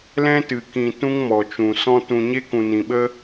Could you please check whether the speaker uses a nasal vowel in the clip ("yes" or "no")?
yes